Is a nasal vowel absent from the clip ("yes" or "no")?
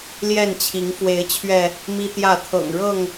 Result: yes